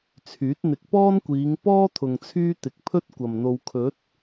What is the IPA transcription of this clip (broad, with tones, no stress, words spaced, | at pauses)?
t͡sʰyː˨˥t̚ n̪ɪ˨˥k̚pɔː˥nkʷiː˨˧ŋpɔː˥ t̪ʰʊ˨ŋt͡sʰyː˥ t̪ɪ˨k̚pʰɵ˥t̚ kʷɐ˨mn̪o˧w kʰɵ˨˥t̚